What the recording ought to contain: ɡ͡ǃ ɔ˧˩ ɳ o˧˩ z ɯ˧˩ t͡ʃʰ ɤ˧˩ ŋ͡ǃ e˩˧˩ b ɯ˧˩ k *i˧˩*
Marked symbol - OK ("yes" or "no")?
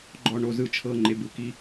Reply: yes